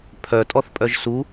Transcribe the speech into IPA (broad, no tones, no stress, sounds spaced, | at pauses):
pʰ œ tʼ ɔ θ pʼ œ ʒ s u